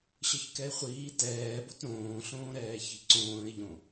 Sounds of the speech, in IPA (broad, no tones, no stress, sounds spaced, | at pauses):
ɕ ɤ ç k ɛ ɪ̯ χʷ iː t ɛː b o t ɾ õː ɬ õː ɾ ɛː ç i̤ ǀ õː ɪ̯ ʎ õ